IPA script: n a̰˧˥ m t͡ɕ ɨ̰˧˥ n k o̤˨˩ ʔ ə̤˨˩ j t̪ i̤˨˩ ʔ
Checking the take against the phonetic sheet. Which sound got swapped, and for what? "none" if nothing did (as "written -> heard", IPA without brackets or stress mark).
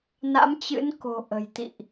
i̤˨˩ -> ḭ˧˨